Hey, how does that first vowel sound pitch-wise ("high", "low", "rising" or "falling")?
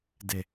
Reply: low